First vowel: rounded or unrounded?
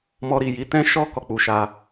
rounded